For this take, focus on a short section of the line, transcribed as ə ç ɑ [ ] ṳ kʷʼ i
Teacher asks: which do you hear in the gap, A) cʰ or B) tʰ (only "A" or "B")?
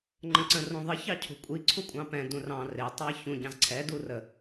A